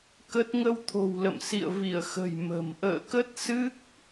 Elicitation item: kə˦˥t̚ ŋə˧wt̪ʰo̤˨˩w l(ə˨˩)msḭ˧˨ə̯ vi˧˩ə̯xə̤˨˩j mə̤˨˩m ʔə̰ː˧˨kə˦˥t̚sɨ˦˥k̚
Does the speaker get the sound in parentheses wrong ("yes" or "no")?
yes